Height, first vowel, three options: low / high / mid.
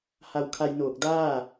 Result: low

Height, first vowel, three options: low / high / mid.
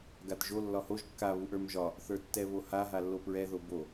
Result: low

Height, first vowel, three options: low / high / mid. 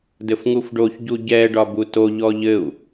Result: mid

